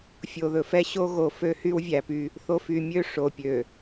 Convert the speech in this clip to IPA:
fʲ o˨ ð ɵ˨ f ɛ˦ ɕ o˦ ɣ o˨ f ø˦ h y˦ w vʲ æ˨ p y˦ | θ o˨ f y˨ mʲ ø˦˨ ʂ o˨ pʲ ø˨

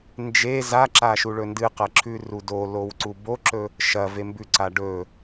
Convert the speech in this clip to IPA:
n d͡ʒ e z a ǁ a ʃ u ɭ ɵ n d ɨ q ɐ ǁʰ ʉ r u d o l o w ǀ u b o ǁ ɵ | ʃ ɐ v e m b ʉ ǀ a ɖ ɵ

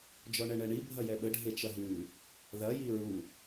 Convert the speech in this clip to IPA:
d͡ʒ ɔ ɳ ɛ ɳ ɛ ɳ i bʱ ɐ j ɛ ɓ ə ɖʱ e t͡ʃ ɐ ɦ ʉ | ð ɐ j i ɹ u

